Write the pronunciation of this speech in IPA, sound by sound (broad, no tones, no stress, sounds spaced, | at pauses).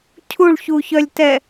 cʰ u ɭ ç u ç œ lʲ t ɛ